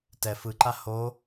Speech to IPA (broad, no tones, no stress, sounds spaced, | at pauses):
t ɛ f ɯ ǃ a h o